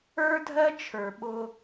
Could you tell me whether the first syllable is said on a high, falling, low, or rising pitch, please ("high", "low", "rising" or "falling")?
high